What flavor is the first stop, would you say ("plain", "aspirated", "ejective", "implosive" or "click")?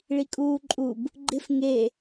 ejective